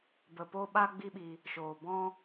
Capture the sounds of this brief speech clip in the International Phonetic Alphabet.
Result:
b ə˨ p o˧ ɓ a˦ ɡ͡b i˦ ɓ i˧ | ʃ oː˨ b ɔ̃˦

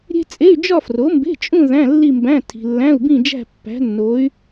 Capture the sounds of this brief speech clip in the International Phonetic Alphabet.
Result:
ɾʲ e̤˥ t͡sʼ e˧˥˧ y̯ d͡ʒ ɒ˥˧ f r o˩˥ m b e̤˧˥˧ t͡ʃʼ ũ˥˧ ð æ̃˧˥˧ lː i˥˧ m b æ̃˧˥˧ tʰ i̤˨ lː æ̃˧˥˧ u̯ b ĩ˥˧ d͡ʒ æ̤˥˧ pː æ̤˧˥ nː o˧˥ y̯

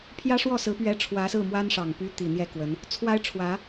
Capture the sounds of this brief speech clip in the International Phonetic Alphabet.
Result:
pʰ j ä˥ ʂ w ɔ˥˩ s ɹ̩˧˥ p ɥ ɛ˧˥ ʈ͡ʂʰ w ä˧˥ s ɹ̩˥˩ m w a˥ n ʂ ɑ˨˩ ŋ p y˥ t̪ i˨˩ n̪ j ɛ˥˩ k w ə˧˥ n | t͡sʰ w a˥ ɪ̯ ʈ͡ʂʰ w ä˧˥

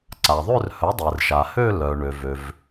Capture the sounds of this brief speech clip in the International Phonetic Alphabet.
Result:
ǀ a˩ ðˤ ø˥˧ r h œ˩˥ dˤ e˩ r ʃ a˩ h ø˥˧ l œ˩ ɳ ø˩ v ø˩ v

